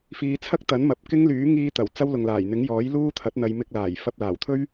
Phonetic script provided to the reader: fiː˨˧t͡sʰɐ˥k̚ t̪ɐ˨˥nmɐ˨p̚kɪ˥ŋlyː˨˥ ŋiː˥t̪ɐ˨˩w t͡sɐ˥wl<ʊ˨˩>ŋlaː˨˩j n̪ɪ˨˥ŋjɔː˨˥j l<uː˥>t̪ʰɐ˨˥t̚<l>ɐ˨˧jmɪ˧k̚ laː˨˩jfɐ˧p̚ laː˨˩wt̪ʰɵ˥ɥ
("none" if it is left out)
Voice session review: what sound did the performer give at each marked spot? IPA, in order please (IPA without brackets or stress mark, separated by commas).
ʊ˨, uː˥, n̪